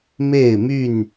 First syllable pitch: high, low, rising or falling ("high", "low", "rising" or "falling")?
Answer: falling